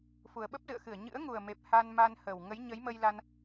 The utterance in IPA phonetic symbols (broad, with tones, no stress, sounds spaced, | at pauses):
f u˨˩ ə̯ ɓ ə˦˥ p̚ z ɨ̰˧˨ ə̯ x ɨ˧˩ ə̯ ɲ ɨ̰˧˥ ə̯ ŋ u˨˩ ə̯ m e˨˩ p̚ h a˧ n m a˧ n h ə˨˩ w ŋ ə˨˦ j ɲ ə˨˦ j m ə˧ j l a˧ n